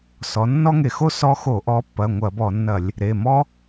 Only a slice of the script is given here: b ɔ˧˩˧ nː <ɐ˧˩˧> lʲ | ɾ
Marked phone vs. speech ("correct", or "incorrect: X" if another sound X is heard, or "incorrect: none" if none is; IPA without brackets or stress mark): correct